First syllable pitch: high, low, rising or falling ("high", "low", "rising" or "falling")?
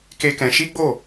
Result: high